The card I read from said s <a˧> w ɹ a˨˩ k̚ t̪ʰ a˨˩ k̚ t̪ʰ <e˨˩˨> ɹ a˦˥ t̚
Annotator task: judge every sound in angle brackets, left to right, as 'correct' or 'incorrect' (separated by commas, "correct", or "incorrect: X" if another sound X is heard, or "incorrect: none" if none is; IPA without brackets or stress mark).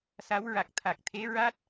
incorrect: a˧˥, incorrect: e˧˥